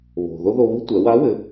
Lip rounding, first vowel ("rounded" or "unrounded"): rounded